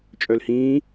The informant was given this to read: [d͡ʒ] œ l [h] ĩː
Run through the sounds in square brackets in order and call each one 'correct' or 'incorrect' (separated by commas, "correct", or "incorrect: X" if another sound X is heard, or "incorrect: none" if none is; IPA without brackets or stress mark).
incorrect: t͡ʃʼ, correct